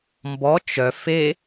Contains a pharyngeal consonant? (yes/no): no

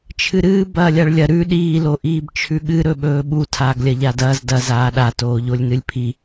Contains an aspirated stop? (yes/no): yes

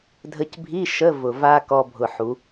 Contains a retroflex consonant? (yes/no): no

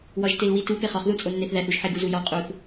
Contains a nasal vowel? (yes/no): no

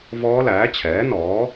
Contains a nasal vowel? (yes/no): no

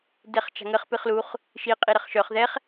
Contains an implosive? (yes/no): no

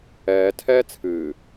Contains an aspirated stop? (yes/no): yes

